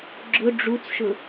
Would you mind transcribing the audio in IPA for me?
ɡ͡ǁ ʊ ɖ͡ʐ u t͡s ʃ ʊ

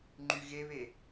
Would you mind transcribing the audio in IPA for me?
ŋ͡ǃ y ɣ e β e

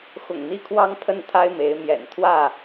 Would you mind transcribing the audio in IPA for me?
x ʊ̰˨˩ ŋ n̪ i˦ kʰ w ɑ˦ ŋ pʰ ə˦ n t̪ʰ a˦ ɪ̯ m e˨˦ ɪ̯ m j ɛ̰˨˩ n t̪ʰ w ä˥˨

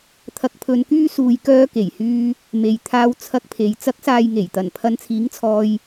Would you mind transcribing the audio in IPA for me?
t̪ʰ ɐ˨ k̚ pʰ ɵ˨ n k yː˧ s uː˨ j k œː˧ k e˨˩ j h yː˧ | m e˨ j t̪ʰ aː˧ w t͡sʰ ɐ˧ k̚ pʰ e˨ j t͡s ɐ˨˥ k̚ s aː˨ j ŋ e˨˩ j t̪ ɐ˨˩ n pʰ ɐ˨˧ n t͡sʰ iː˨˥ ŋ t͡sʰ ɔː˧ j

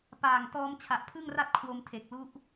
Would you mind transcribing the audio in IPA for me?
p aː˨˩ ŋ t ɔː˧ m t͡ɕʰ a˨˩ ʔ pʰ ɯ˥˩ ŋ r a˥˩ t̚ kʰ w o˧ m tʰ e˨˩ k̚ l u˦˥ ʔ

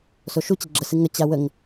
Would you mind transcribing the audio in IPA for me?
s o ʃ u t͡ɕ ɪ ɡ͡ǁ ə s ɨ ŋ ə t͡ɕ a w ə ŋ

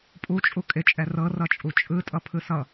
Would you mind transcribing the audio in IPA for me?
pʼ u t͡ʃʼ u kʼ ɪ t͡ʃʼ ɛ r ɤ r ʌ t͡ʃʼ u t͡ʃʼ ɯ tʼ ʌ pʰ ɯ s ʌ

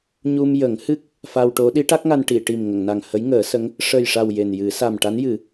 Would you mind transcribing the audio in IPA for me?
ɲ u˧ m j ə˨˩˦ ŋ h ɨ˦˥ k̚ | f a˧ w ʈ o˧˥ ɗ i˧˥ ʈ a˦˥ k̚ ŋ a˧ n ʈ i˨˩˨ ʈ i˨˩ m ŋ ə˨˩˨ ŋ n a˨˩ ŋ h ə˧˥ j ŋ əː˨˩˦ s ə˧˥ ŋ | ʂ ə˨˩ j ʂ a˨˩ w j e˨˩ n j ɨ˨˩˦ s a˨˩ m ʈ a˧˥ n j ɨ˨˩˦

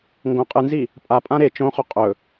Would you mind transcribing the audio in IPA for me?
ŋ ɡ õ qʼ ɨ n z i | pʼ a pʼ ã ɾ e t͡ʃ õ χ ɵ qʼ ɵ

